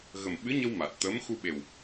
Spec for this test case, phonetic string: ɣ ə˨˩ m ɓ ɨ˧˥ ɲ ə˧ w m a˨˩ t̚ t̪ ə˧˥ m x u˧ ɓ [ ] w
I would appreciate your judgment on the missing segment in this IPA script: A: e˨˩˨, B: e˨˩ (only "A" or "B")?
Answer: B